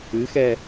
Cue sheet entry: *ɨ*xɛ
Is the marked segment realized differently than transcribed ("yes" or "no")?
no